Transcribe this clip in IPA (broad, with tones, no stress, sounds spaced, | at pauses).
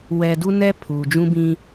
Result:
w ɛ˦ d u˦ n ɛ˦ pʰ uː˨ d͡ʒ ũ˦ b ĩ˦